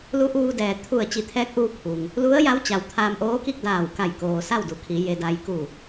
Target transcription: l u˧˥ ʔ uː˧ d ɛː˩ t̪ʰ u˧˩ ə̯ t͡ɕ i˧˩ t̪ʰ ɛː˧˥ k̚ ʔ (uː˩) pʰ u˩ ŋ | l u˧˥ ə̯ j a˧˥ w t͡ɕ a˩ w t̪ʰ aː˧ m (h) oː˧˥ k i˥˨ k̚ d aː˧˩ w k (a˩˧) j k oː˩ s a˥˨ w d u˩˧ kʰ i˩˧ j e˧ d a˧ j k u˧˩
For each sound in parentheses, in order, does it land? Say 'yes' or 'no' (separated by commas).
no, no, no